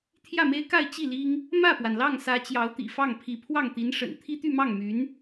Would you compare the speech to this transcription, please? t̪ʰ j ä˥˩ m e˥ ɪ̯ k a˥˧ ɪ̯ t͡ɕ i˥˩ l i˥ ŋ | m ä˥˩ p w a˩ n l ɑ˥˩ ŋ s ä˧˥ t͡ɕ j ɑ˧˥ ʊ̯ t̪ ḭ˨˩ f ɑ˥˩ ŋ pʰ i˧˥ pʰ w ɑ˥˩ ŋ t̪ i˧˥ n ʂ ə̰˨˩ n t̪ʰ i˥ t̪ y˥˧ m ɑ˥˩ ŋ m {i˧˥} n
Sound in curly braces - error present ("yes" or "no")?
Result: yes